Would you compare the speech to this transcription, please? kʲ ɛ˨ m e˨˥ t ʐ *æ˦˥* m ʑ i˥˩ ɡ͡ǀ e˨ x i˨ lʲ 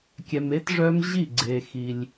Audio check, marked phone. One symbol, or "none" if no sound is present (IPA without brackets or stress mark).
œ˦˥